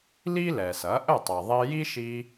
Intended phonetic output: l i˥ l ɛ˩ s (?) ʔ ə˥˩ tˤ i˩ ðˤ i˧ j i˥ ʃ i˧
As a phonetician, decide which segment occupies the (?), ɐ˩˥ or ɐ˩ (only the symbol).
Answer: ɐ˩˥